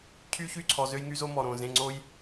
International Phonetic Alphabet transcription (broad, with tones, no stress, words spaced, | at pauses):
cʰy˦çy˦˨ǀʰɔ˨ zø˦jŋy˦zo˦ mɔ˨ɾõ˦˨ zẽ˦˨ŋ͡ǀo˦j